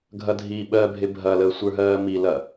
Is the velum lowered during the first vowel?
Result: no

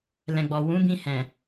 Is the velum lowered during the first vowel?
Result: yes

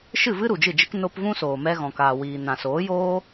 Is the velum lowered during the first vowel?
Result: no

